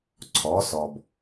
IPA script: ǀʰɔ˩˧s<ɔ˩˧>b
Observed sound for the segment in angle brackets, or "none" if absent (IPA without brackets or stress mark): ɔ˩